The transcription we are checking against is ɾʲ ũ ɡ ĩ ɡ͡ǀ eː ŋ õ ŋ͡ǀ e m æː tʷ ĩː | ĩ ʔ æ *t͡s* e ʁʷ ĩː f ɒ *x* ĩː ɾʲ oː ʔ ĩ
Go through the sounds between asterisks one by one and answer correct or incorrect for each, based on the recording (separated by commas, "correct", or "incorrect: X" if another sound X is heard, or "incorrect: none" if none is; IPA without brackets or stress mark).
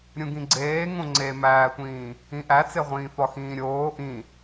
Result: correct, correct